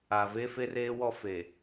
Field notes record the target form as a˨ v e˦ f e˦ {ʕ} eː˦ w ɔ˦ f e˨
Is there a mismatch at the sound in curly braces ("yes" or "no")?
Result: yes